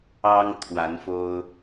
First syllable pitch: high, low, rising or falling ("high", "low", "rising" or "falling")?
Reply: high